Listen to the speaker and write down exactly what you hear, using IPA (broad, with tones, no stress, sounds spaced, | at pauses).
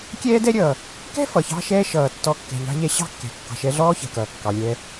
kʲ ɛː˥ d ɛ˥ ɾʲ ʌː˩ | k ɛ̤˥ f ʌ˩ ç ɑ̤˧ ʃ ɛː˧ ʃ ʌː˩ tː ɔ˧ kː ɛ̤˩ ʎ ɑ̤˧ ʎ ɛ˧ ɕ ɑ̤˥ kː ɛ̤˩ kː ɑ̤˩ ʃ ɛ˧ ɮ ɔː˥ ç ɛ̤˩ k ʌː˩ kː ɑ˩ lʲ ɛː˧